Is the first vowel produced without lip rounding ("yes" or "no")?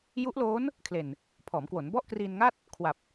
no